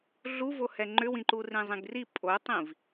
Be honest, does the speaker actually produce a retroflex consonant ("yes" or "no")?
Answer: no